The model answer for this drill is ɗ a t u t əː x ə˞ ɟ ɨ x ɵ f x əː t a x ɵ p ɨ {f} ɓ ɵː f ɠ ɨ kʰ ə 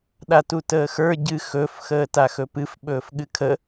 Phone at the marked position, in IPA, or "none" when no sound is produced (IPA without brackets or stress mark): f